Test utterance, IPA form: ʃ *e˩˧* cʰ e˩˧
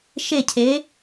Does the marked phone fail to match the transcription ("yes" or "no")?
yes